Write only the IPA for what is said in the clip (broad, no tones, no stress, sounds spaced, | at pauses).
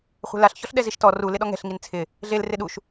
χʷ ɛ̤ l a ɬ ç ɔ ɬ ɗ ɛ z i ʃ t ɔ r u l ɪ ɗ ɔ ŋ ɛ̤ ɬ ŋ i n t͡sʰ ɪ | ɮ e l r ɪ ɗ u ʃ